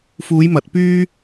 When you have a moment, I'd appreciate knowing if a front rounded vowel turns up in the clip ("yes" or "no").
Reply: yes